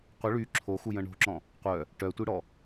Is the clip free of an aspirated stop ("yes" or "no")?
no